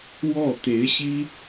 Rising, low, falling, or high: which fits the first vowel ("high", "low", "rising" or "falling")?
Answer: falling